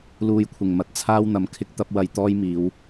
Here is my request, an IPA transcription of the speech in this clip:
luː˨jkʷʰɪ˨˩ŋmɐ˨˥t̚ t͡sʰaː˥wn̪ɐ˨˧mkʰɪ˥k̚t̪ɐ˥p̚ wɐ˧jt̪ɔː˥jmiː˨˧w

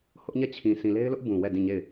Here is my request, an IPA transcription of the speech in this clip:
hʊ˦ʔɲɛ˦˨t͡ɕʰĩ˨ sĩ˨le˦ɪ̯lʊ˦ʔ bũ˨wɛ˦˨dĩ˦˨ɲe˦˨ɪ̯

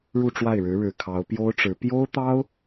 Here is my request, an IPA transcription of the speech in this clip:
ɻu˥˧ʈ͡ʂwa˥˩ɪ̯ɻɻ̩˧˥ ɻɻ̩˨˩ kʰɑ˧˥ʊ̯ pjo˥ʊ̯ʈ͡ʂɻ̩˧˥ pjo˥ʊ̯t̪ɑ˥ʊ̯

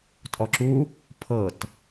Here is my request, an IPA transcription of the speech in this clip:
tʼɔǁu | pʰɤt

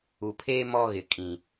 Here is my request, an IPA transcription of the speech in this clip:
u˨pʰeː˦ mɔ˦ɣɪ˨ kʼĩ˨

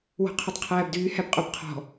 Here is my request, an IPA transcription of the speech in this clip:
wɔ̤qʰytˤqʰæːbdyː hæbqʼobqʰɔ̤

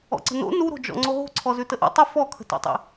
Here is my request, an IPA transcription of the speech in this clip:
ɔ̰ǀə̤no̰ nuɾo̤d͡ʒɔ̰ ŋ͡ǀoɦo̤ ǀʰɔzʉtəʔo̰ tˤə fɔkʰə̤to̰tˤḭ

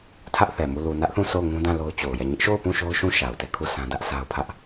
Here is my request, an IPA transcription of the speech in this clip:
tʰä˦ʔθɛ˨mu˦˨ lu˨nä˦ʔθũ˦˨ so˦˨ʊ̯ŋũ˦dã˦˨ lo˦ʊ̯t͡ɕo˨ʊ̯jɛ˦˨ ɲɪ˦ʔʃo˦˨ʊ̯pũ˦˨ ʃo˦ʊ̯ʃũ˦˨ ʃa˨ʊ̯tɛ˦˨kʰu˦˨ sã˦dä˦ʔ sʰa˦ʊ̯pʰä˦ʔ

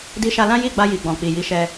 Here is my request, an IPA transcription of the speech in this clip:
di˧ʃa˧lã˦ ji˦˨ɡ͡ba˧ji˨ ɡ͡bɔ̃˨k͡pi˨ji˨˦ʃɛ˧

